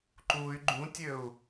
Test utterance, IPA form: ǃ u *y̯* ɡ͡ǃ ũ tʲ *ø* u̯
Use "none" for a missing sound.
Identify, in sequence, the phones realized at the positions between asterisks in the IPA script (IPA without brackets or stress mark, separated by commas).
y̯, ø